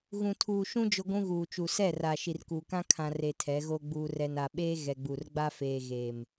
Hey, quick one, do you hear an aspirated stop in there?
yes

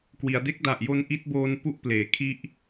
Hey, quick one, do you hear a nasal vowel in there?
no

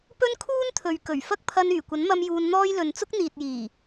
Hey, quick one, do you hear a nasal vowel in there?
no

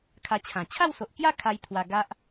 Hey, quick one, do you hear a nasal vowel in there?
yes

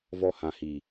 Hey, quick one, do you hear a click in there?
no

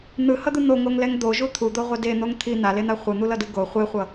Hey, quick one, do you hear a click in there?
no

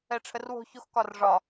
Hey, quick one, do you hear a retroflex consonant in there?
yes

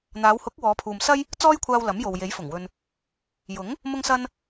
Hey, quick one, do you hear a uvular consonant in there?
no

